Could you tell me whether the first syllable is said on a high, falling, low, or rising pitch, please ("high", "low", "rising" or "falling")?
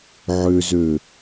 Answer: low